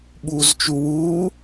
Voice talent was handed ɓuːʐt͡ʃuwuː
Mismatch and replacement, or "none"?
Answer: ʐ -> z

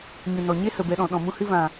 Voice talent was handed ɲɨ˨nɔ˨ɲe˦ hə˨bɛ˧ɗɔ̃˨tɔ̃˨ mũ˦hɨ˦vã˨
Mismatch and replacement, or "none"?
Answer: t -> ɗ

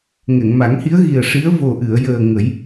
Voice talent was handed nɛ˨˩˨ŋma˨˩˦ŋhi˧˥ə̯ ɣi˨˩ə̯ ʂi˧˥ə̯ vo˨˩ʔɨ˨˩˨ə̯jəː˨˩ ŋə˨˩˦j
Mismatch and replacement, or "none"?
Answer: n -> ŋ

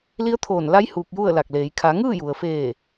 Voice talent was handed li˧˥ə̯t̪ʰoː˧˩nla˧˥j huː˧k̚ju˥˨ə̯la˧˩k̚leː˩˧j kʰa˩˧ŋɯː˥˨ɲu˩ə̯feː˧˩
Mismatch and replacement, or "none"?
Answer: ɲ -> j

